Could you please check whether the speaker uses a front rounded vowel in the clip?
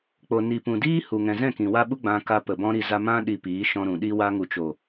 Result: no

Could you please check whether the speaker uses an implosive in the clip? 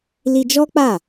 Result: no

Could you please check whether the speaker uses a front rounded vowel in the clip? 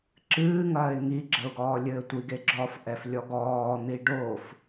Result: no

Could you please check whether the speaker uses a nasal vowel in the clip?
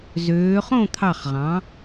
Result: yes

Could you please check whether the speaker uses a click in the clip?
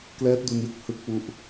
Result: no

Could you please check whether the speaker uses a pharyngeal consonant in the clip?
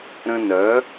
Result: no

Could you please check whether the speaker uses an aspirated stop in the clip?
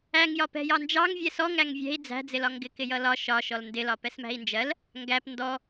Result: no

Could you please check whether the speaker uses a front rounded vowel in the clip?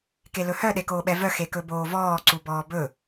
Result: yes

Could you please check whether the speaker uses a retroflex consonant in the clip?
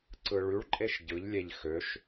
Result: yes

